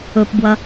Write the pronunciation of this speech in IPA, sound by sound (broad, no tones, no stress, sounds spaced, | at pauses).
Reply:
ɵ p b w ɐ